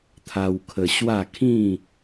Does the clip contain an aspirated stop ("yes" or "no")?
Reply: yes